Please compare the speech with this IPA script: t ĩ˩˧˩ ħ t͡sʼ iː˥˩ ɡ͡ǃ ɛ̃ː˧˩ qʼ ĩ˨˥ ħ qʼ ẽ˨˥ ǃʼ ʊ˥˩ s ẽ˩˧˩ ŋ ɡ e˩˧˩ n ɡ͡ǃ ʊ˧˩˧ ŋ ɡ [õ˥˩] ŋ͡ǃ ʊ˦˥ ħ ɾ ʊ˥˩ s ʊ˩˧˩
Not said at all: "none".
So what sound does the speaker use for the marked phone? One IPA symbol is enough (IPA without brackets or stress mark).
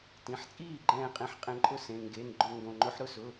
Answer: õ˩˧˩